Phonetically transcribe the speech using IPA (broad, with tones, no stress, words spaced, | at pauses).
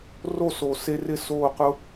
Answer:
ro˦˨so˨se˧rɪ˦˨ soː˦˨qʊ˦